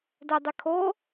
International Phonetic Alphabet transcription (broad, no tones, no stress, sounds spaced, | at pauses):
d ɛ dˤ ɪ kʰ o